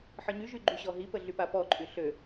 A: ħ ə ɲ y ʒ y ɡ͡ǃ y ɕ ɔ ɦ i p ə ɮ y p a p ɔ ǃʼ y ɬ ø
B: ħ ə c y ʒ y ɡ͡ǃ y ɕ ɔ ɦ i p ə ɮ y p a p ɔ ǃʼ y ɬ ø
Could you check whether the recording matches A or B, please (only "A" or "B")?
A